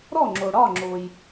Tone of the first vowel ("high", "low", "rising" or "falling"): falling